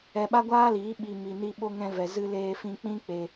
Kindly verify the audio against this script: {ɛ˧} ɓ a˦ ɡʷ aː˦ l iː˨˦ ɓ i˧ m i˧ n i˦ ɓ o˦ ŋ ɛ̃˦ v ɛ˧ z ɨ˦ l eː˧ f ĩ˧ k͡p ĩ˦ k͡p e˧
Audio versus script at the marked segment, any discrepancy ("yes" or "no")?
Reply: no